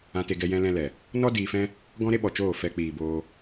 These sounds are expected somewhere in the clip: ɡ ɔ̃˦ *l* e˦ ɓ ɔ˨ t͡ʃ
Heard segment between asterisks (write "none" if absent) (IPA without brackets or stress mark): ɾ